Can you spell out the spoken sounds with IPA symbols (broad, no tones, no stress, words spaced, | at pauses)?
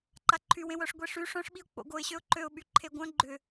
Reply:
ǃaǃʰywẽwœʂ ɡʷeʂy ʂœ̃ʂɓiʊ̯ k͡po̰ɡoɪ̯ɕøʊ̯ ǃøʊ̯ɓy ǃʰeɡʷœ̃ ɡ͡ǃʏ